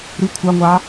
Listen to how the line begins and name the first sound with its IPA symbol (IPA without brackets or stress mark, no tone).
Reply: ɾ